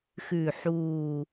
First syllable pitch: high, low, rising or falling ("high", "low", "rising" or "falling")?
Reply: low